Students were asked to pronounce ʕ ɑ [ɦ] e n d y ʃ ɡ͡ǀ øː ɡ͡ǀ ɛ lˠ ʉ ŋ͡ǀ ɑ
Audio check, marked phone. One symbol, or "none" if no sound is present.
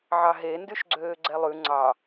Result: ɦ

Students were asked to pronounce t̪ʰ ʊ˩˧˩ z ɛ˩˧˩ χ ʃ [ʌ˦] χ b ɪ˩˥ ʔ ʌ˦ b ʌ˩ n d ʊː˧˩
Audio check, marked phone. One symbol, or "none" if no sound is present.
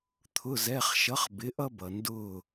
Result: ʌ˩˥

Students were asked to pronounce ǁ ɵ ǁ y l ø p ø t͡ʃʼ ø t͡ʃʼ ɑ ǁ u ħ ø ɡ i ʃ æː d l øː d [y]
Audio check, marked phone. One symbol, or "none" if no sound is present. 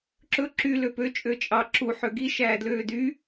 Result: y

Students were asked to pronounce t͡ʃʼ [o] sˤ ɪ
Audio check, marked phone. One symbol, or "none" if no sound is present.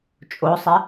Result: o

